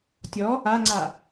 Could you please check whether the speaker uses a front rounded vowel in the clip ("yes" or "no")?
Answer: no